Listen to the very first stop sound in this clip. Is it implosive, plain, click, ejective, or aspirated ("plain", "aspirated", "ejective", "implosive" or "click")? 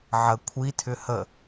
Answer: aspirated